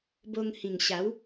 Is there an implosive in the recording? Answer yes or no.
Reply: no